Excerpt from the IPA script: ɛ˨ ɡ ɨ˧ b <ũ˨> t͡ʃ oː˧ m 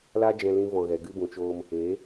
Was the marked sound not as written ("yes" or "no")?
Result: no